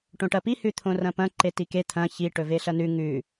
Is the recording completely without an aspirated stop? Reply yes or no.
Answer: no